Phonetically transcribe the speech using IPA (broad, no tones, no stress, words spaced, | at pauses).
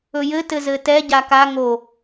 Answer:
ɵjɘ tɘzɘtɛ ɟaka ŋo